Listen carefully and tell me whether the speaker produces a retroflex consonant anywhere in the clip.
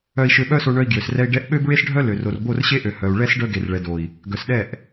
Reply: yes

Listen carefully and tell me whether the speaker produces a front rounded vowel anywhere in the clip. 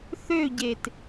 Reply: yes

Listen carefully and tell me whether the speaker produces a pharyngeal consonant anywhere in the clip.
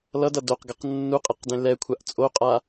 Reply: no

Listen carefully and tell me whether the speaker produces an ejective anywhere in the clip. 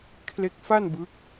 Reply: no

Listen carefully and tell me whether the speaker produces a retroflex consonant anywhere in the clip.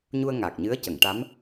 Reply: yes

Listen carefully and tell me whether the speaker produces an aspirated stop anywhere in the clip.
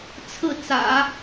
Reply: yes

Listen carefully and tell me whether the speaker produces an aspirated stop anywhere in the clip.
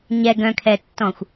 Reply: yes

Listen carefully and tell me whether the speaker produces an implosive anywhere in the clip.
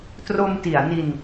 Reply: no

